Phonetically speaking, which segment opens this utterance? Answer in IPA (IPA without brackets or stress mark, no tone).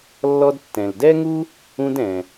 lː